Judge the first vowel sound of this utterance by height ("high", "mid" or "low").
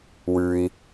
high